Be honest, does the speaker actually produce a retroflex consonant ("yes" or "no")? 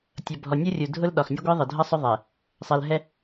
no